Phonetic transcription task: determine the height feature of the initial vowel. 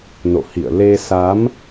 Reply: mid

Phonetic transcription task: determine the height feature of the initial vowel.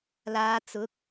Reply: low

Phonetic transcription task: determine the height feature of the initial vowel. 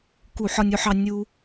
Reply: high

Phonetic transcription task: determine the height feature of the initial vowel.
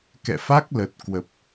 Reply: mid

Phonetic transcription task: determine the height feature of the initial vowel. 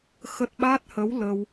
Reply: mid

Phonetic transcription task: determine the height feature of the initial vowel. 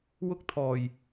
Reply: high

